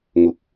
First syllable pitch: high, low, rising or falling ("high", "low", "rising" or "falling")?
low